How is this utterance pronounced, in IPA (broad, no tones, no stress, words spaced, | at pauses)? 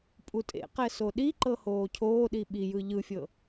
pʼutʼḛqɛ soɗiǃɤ hoːcʰoːɗi ɓijɯ ʎɯfʲɤ